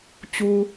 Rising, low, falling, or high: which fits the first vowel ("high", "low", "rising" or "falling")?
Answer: low